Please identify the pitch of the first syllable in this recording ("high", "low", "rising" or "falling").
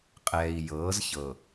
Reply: low